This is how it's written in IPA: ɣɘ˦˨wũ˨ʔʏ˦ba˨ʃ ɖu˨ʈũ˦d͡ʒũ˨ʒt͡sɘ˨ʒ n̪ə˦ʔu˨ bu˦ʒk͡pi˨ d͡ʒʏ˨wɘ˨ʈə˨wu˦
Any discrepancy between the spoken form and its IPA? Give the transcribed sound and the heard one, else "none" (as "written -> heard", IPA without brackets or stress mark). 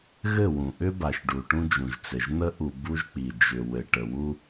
none